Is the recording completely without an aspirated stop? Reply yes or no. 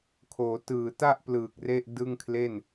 no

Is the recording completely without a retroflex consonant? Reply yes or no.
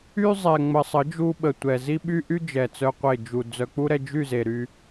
yes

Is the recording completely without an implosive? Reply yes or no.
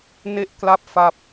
yes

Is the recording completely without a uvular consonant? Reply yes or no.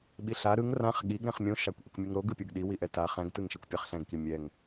no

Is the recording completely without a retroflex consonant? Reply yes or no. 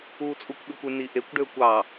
no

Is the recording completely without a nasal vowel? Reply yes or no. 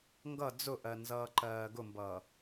yes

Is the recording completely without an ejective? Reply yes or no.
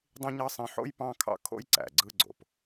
yes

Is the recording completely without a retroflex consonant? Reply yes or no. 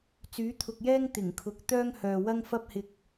yes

